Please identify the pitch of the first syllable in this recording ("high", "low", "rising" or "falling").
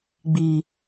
low